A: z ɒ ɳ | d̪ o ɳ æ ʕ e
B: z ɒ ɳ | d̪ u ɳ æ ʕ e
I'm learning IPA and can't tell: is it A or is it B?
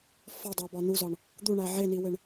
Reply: B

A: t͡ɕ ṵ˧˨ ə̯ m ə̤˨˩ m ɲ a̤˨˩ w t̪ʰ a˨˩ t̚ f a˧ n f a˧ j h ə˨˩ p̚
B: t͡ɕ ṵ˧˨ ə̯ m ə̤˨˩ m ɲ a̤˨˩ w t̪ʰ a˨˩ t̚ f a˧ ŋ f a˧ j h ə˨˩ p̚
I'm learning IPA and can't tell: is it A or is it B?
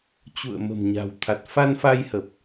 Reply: A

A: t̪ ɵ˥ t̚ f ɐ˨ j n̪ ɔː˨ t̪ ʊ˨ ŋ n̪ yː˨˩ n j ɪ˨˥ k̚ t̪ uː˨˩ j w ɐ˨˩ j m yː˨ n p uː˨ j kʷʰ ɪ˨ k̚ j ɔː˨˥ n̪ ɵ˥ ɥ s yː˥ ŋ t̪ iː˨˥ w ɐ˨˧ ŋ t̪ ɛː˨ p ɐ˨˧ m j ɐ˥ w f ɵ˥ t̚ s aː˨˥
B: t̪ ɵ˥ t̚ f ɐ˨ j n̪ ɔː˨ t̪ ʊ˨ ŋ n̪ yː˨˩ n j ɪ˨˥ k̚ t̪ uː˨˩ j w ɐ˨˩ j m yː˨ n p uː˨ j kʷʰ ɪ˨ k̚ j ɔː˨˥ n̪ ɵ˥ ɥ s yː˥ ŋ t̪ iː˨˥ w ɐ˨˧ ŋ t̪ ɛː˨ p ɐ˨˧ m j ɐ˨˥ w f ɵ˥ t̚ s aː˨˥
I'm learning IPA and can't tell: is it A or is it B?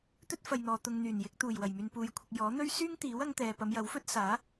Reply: B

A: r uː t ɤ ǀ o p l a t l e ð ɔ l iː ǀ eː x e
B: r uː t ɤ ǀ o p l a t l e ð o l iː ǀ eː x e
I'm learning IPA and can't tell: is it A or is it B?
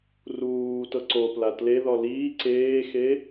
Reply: A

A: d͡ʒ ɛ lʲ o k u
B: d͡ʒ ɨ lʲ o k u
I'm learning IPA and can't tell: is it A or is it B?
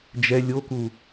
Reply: A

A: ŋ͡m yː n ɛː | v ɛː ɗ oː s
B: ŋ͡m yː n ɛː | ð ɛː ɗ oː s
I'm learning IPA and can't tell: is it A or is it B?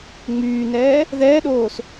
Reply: B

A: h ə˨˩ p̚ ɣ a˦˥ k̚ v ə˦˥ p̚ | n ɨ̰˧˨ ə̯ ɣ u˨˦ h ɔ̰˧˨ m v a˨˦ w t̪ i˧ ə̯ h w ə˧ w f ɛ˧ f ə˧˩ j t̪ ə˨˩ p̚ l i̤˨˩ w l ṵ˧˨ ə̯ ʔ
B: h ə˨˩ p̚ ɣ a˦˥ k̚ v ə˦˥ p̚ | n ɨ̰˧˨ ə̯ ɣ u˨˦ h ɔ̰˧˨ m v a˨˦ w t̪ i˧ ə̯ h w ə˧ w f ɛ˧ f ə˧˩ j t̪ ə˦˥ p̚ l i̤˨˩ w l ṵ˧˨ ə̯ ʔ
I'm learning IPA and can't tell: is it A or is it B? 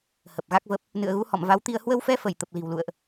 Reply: A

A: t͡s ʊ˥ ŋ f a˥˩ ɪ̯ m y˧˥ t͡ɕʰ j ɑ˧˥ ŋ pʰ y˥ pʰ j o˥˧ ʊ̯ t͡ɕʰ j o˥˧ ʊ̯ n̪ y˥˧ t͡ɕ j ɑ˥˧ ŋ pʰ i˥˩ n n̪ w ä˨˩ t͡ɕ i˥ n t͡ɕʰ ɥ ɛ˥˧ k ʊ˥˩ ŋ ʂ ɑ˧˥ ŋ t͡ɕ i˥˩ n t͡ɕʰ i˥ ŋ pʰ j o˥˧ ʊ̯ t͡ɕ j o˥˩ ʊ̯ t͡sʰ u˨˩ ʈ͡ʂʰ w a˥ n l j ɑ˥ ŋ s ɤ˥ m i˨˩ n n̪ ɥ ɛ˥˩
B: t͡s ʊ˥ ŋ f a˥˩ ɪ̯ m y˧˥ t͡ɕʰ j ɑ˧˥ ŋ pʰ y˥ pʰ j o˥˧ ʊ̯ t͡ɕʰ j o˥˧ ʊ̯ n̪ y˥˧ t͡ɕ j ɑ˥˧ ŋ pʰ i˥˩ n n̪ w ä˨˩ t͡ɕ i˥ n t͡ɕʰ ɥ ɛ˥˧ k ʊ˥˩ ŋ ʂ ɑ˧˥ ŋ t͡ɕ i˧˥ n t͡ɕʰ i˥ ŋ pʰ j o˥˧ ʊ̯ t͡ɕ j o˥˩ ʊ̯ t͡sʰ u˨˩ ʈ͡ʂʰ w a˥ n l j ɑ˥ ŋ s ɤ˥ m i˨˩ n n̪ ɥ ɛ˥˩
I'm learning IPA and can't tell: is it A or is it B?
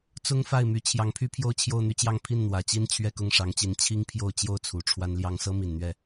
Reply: B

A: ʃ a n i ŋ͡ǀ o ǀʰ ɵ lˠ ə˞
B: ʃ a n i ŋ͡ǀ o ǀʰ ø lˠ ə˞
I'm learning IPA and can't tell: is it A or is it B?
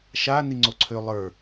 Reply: B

